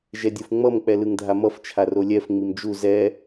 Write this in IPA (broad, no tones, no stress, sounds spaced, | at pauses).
ʒ ɛ dʲ ɯ f ŋ͡m ʌ m k͡p ɛ l ɯ ŋ dʱ a m ʌ f t͡ʃʰ a r o lʲ ɛ f ŋ͡m i m d͡ʒ u z ɛ